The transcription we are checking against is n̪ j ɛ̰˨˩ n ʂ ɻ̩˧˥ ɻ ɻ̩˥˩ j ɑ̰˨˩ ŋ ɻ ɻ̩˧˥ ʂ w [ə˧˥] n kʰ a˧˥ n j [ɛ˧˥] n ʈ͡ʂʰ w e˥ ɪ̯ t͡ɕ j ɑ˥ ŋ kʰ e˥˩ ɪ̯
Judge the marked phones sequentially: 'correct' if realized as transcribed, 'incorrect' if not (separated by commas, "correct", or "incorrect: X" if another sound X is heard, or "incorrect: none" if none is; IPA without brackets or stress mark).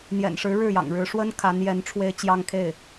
incorrect: ə˥, correct